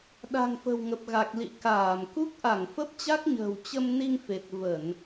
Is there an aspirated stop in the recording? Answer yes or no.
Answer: no